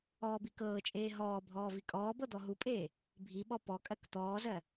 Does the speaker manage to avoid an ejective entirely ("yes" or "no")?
no